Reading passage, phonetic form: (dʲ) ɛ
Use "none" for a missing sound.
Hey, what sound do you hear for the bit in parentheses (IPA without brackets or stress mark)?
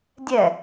dʲ